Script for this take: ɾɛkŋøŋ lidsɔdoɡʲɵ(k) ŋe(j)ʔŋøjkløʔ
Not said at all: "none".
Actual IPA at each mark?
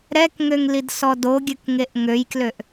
k, none

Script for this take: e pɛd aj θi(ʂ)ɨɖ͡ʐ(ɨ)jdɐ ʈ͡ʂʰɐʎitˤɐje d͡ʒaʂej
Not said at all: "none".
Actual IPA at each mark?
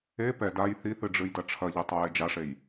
θ, ɨ

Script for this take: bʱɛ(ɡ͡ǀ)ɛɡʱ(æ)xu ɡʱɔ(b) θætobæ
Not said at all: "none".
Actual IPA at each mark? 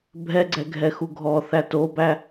ɡ͡ǀ, ɛ, none

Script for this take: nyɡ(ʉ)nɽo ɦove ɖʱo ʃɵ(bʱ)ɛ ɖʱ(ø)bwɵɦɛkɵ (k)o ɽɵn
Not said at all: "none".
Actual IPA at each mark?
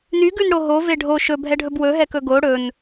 ʉ, bʱ, ɵ, ɡ

